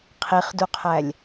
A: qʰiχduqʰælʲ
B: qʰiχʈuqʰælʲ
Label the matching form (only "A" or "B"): A